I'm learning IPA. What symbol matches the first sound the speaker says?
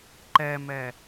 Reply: ǃ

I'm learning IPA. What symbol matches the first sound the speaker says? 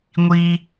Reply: ŋʷ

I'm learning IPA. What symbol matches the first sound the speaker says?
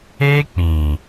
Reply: e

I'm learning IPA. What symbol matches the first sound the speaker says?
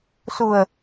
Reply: s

